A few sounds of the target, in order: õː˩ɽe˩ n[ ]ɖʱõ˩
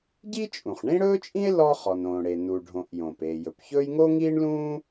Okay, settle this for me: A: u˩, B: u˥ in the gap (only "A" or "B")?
A